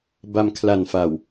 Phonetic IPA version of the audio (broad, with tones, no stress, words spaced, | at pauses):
ba˧mkʰla˨˩n fa˨˩w